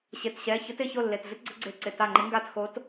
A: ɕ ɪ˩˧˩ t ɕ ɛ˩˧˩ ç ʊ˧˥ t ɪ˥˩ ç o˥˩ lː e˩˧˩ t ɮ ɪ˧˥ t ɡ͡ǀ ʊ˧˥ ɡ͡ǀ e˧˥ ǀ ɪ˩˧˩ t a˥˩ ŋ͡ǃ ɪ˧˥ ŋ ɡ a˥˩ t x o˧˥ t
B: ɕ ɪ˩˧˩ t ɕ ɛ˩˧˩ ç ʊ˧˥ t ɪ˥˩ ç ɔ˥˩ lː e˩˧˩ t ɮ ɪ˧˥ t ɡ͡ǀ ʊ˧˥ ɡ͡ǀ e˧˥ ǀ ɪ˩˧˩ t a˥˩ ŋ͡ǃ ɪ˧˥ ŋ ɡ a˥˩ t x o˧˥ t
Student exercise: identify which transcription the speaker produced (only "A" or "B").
A